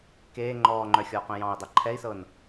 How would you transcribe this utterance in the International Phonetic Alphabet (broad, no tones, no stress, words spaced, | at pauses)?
keː ŋ͡ǃɔːŋ͡ǃœxʲɔːqœ̃ jɑ̃i̯dˤe ǃʰɛi̯sɤn